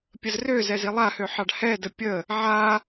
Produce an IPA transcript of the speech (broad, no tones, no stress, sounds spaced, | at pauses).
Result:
pʲ ə z r ø z ɛ z i lˠ a h ø ħ ɑ ɖ h ɛ d ə pʲ ə | ʕ a